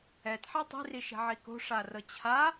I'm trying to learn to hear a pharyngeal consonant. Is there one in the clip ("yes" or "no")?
yes